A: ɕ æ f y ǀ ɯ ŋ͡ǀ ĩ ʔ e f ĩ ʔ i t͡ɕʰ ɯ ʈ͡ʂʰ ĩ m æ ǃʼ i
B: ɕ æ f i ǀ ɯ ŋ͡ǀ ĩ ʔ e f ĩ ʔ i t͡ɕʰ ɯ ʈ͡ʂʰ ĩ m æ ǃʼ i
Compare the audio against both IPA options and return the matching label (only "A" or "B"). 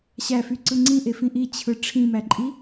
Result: A